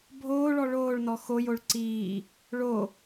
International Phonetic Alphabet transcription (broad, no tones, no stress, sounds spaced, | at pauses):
bʱ oː ɭ ɔ ɭ oː ɭ n ɔ x o j o ɭ ǀ iː | ɭ o